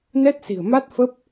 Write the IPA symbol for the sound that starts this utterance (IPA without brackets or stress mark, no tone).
n